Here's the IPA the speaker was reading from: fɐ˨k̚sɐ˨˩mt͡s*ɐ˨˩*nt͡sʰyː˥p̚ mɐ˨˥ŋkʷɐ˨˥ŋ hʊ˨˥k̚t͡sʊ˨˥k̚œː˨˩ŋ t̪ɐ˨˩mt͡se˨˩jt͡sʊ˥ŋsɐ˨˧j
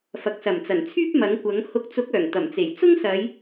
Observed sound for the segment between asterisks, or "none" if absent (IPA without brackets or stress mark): ɐ˨˩